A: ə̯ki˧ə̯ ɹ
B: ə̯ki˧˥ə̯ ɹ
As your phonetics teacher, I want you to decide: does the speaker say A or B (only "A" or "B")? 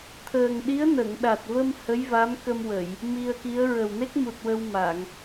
B